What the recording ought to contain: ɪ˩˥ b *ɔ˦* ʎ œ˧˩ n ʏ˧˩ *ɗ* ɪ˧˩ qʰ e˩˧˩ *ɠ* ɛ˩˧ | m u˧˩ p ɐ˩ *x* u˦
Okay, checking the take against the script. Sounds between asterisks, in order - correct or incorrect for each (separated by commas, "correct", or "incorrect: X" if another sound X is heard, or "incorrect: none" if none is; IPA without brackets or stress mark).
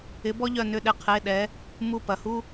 correct, correct, incorrect: ɗ, incorrect: h